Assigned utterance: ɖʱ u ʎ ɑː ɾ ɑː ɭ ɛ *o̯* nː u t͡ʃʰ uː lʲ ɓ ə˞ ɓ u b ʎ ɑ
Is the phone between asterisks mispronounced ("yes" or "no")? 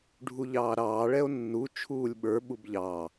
no